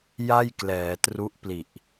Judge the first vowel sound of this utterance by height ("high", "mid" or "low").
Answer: low